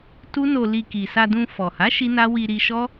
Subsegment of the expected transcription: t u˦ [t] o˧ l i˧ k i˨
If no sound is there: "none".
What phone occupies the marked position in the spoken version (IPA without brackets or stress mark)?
n